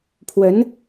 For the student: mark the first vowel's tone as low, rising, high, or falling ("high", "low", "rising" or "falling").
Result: rising